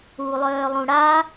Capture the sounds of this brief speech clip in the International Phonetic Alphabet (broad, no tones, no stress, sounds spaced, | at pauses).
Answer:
u lˠ œː lˠ ũ ɽ a